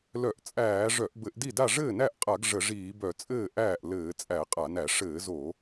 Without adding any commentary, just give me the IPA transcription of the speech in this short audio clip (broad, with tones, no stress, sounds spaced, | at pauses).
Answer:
l œ˧˩˧ ʔ t͡sʼ æː˧˩˧ ʐ œ˧˩˧ ʔ b ɘ˧˩˧ ʔ d i˥˩ d a˥˩ ʐ ɘː˥˩ n æ˥˩ ʔ qʼ a˧˩˧ ɡ ʐ ə˧˩˧ ʐ iː˧˩˧ b œ˧˩˧ t͡sʼ ɘː˥˩ ʔ æː˥˩ ʔ l ɘː˧˩˧ t͡sʼ æ˧˩˧ qʼ a˧˩˧ n æ˧˩˧ ʂ ɘː˧˩˧ z o˧˩˧